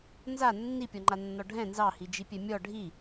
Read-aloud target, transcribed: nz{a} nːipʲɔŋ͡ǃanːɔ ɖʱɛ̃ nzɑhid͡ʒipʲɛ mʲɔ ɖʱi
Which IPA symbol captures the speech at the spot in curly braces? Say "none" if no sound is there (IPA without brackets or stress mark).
a